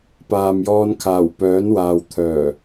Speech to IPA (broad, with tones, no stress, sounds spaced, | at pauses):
p aː˨ m j ɔː˧ n kʰ aː˨˩ w p œː˨˥ n w aː˨ w t̪ʰ œː˨˩